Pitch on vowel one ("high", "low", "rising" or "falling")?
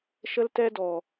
high